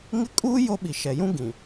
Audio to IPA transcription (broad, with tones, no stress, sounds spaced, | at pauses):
ŋ ɪ˦ kʼ uː˦ j o˦ ɓ i˨ ʃ ɛ˨ j ũ˦ ɡ ĩ˨